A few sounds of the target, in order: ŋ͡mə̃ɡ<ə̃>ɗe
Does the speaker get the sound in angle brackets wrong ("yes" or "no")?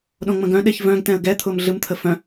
yes